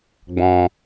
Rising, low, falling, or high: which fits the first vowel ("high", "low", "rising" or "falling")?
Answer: low